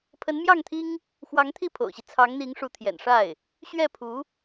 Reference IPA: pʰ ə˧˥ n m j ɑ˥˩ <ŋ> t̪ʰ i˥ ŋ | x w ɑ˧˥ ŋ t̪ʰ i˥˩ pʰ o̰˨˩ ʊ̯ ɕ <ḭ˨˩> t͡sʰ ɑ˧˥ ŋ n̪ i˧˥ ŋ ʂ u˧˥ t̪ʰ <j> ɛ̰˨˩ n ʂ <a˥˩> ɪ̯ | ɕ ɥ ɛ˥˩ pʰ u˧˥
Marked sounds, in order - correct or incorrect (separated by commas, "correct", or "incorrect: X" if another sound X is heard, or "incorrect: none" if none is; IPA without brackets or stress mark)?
correct, incorrect: i˦, correct, correct